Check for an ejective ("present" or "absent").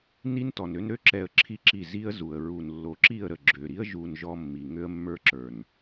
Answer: absent